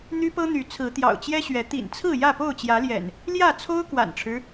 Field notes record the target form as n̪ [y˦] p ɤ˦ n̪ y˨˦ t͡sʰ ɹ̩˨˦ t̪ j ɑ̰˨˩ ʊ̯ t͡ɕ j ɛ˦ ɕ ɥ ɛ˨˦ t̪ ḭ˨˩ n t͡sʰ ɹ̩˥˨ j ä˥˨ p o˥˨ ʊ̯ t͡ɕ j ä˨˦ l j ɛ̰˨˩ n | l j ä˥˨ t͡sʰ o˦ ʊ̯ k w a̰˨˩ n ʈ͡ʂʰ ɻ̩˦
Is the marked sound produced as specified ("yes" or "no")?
yes